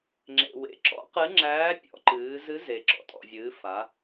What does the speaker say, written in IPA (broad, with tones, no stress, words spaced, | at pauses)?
ŋ͡ǁḛ˩wḛ˩ǁɔ̰˧˥ qɨ˧˥ŋ͡ǁæː˧˥ pʲɔ̰˩˧ǃɨː˩˧zɨ˧˥ze˩ ǁɔ̰˩tʼɔ̰˩vʲɨː˩˧ fa˩˧